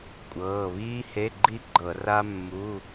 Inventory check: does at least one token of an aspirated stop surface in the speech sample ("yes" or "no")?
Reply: no